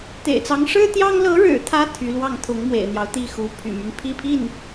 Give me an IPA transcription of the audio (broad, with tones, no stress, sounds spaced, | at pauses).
t̪ ḛ˨˩ ɪ̯ t͡s ɑ˧˥ ŋ ʂ ɻ̩˥ t̪ j ɑ˥ ŋ l ɤ˧˥ ɻ ɻ̩˨˩ t̪ʰ ä˧˥ t̪ʰ y˧˥ l w ɑ˥˩ ŋ t̪ʰ ʊ˧˥ ŋ m w ḛ˨˩ ɪ̯ n̪ j ɑ˦ ʊ̯ t̪ i˥˩ x u˧˥ pʰ y̰˨˩ m y˦ n pʰ i˥˧ pʰ i˥˩ n